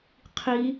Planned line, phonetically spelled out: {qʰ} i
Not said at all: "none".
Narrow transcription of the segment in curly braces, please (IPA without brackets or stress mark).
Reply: qʰ